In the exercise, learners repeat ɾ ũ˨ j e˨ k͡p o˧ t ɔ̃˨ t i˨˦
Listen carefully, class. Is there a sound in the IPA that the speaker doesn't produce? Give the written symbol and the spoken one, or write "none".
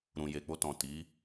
none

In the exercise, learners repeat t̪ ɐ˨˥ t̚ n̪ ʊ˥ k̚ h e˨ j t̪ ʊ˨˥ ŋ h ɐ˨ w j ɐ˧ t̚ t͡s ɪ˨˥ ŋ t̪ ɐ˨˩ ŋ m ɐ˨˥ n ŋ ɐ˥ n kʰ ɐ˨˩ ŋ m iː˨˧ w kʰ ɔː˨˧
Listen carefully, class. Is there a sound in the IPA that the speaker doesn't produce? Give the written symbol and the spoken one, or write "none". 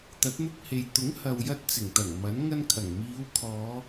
ɪ˨˥ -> ɪ˨˩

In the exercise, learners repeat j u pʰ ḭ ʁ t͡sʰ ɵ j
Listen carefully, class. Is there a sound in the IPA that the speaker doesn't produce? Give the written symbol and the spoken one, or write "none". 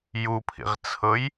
ɵ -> ɤ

